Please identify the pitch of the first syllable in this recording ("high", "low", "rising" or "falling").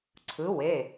rising